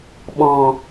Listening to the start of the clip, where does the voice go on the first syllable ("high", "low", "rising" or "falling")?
low